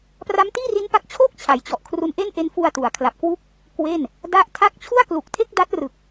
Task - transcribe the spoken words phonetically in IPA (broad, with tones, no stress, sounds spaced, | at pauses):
p r a˦˥ m t iː˥˩ r i˦˥ n p a˦˥ k̚ t͡ɕʰ oː˥˩ k̚ t͡ɕʰ a˩˦ j t͡ɕ ɔ˨˩ ʔ kʰ r u˧ n ʔ e˥˩ n ʔ e˦˥ n f u˧ a̯ t u˩˦ a̯ kʰ l a˨˩ p̚ k w u˥˩ k̚ | k w e˥˩ n | d a˦˥ ʔ tʰ a˥˩ k̚ t͡ɕʰ u˥˩ a̯ k l u˨˩ k̚ tʰ e˥˩ k̚ d a˦˥ t̚ r ɯ˨˩ k̚